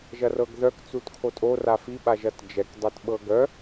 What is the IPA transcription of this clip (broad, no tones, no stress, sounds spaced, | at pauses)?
ʒ ɐ r ɤ ɡ ð œ k t͡s u t kʰ o tʼ o r a f i ɓ a ʒ ɐ t d͡ʒ ɛ k dˤ ɛ t ɓ ɤ ɡ œ